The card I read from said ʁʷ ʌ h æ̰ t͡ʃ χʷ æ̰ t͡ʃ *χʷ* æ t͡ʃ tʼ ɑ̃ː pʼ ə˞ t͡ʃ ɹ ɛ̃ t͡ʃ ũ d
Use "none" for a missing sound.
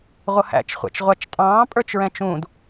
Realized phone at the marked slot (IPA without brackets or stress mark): ʁʷ